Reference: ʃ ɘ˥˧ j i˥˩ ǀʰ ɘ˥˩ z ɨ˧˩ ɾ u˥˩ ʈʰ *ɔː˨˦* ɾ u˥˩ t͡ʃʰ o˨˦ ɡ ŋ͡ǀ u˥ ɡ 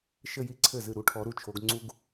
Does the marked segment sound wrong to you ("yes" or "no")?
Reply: yes